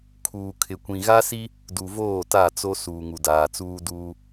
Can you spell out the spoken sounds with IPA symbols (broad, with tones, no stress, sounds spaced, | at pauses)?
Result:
kʰ uː˨ kʰ ɪ˨ kʷ ĩ˨ ɣ a˦ s i˦ | d u˨ v oː˦˨ t a˦˨ t͡s o˦ s uː˨ ŋ u˨ d aː˨ t͡s uː˦ d uː˦